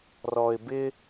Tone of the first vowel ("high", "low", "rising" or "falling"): low